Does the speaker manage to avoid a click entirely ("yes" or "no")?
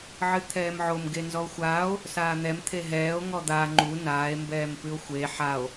no